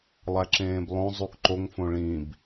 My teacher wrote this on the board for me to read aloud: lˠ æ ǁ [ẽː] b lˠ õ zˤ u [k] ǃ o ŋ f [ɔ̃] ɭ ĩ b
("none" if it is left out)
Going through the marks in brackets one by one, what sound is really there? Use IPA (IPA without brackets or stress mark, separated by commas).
ẽː, k, õ